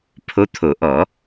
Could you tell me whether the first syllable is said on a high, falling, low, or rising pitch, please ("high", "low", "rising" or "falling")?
rising